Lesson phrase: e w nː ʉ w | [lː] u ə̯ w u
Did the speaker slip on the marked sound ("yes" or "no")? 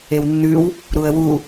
yes